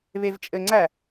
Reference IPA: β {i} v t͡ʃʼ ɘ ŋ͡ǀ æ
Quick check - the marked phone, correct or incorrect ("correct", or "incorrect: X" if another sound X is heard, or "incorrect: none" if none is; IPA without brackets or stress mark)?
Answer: incorrect: e